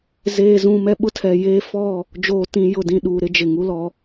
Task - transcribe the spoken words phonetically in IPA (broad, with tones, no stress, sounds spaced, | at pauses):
z eː˨ z ũ˨ m ɛ˦ ɓ ʊ˦ tʰ ɛ˨ j eː˦ f ɔ˦˨ | d͡ʒ oː˨ t ĩ˨ j ʊ˨ d ĩ˨ ɗ uː˨ ɾ ɪ˦ d͡ʒ ɪ˨ ŋ u˦ l ɔ˦